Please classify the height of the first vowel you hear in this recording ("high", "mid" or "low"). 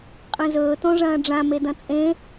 mid